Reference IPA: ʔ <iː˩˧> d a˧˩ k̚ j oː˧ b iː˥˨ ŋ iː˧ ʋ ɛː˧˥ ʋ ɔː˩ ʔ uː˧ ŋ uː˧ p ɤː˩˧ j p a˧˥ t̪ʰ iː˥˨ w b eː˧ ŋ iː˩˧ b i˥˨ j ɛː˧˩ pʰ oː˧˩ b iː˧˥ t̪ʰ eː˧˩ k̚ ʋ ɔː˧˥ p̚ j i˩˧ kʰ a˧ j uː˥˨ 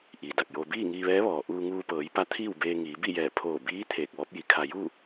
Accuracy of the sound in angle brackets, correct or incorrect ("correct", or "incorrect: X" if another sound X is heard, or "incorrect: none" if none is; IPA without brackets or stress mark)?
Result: incorrect: iː˩